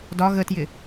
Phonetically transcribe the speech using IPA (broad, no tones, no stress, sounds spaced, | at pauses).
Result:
d ɒ ɣ ə t j ɪ